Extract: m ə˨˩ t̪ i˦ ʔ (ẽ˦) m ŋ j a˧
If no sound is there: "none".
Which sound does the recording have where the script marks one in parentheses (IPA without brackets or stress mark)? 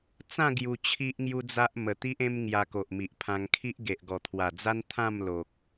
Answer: ẽ˦